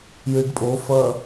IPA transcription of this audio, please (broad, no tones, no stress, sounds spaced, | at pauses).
j ɨ ɖ pʼ o f ɐ